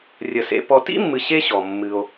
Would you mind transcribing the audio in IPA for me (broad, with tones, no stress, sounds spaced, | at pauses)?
rʲ ə˨ s ḛ˧ p ɔ˨ t ḭ˦ mː ɨ˨ ɕ e˦ ɕ ɔ˨ mː ɨ˧ o̯